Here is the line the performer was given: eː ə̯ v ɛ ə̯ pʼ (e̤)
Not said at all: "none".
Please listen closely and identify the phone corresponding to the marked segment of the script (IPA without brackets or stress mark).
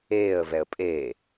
e